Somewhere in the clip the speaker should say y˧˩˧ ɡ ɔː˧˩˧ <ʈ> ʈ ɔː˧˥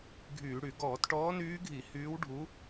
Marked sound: incorrect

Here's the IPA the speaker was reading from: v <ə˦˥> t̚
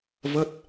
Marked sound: correct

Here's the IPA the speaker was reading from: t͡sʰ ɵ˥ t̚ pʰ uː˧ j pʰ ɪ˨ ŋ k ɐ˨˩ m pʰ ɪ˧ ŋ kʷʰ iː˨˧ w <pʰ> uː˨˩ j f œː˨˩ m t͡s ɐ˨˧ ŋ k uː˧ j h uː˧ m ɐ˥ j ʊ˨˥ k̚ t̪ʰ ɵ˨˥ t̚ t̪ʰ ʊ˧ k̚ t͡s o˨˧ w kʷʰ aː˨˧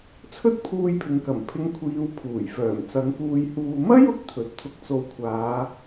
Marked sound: correct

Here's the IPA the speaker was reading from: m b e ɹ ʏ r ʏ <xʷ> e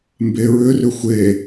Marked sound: correct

